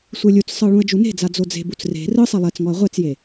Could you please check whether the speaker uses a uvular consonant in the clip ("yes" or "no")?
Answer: yes